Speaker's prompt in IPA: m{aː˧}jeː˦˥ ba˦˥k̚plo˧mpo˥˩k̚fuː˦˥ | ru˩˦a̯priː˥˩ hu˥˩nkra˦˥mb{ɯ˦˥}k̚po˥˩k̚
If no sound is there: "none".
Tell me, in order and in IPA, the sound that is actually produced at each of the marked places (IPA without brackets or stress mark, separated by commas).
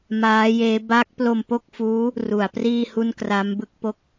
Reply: aː˦˥, ɯ˦˥